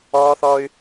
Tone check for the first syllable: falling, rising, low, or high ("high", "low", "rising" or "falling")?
high